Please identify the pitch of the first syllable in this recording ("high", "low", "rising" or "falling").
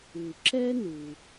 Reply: low